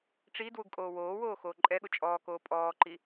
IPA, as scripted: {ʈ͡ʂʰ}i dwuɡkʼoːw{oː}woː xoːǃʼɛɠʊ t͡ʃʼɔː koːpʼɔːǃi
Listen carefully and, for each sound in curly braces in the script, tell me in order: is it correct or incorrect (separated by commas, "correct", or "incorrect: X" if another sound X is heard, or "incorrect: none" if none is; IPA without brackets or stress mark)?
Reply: incorrect: ʈ͡ʂ, correct